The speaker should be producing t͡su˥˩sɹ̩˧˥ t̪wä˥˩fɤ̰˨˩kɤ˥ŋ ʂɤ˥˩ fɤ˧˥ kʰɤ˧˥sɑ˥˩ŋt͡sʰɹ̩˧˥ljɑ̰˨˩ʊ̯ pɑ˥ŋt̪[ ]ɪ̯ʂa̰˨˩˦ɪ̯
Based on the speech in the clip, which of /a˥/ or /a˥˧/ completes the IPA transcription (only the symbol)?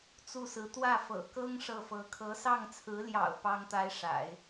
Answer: a˥